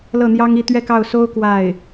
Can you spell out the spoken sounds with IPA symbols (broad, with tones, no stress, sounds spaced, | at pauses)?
l ɤ˥˩ n̪ j ɑ˥ ŋ i˥˧ t̪ ɥ ɛ˥˧ k ɑ˥˩ ʊ̯ s o˥ ʊ̯ k w a˥˩ ɪ̯